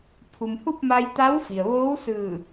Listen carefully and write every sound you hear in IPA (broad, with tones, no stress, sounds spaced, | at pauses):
pʰ u˩ m h u˥˨ p̚ m a˧ j t̪ a˧˥ w f i˩ ə̯ ʋ oː˧˥ w s ɯː˧˩